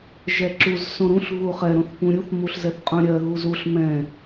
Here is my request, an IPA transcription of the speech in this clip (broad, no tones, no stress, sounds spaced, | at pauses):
ʒ ɛ ǁ u z s õ ɾ ũ ɬ ɣ u χ ɛ ɾ õ θ p ũ ɾʲ u θ m u ɬ z ɛ θ qʼ ũ ɾʲ ɜ ɣ u z u ɬ m ɛ̃